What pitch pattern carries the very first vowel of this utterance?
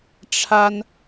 high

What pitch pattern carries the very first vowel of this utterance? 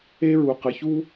high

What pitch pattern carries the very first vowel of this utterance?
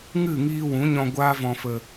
falling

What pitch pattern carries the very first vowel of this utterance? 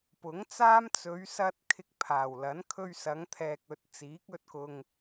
rising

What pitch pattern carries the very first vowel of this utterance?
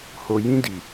low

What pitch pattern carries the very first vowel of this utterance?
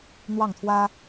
falling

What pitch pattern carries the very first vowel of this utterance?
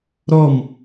falling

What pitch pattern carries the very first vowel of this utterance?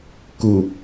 low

